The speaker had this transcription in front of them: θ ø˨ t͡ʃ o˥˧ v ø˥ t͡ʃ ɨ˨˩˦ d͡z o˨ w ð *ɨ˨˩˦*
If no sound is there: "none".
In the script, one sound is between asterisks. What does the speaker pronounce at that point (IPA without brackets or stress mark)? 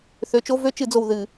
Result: ɨ˨˩˦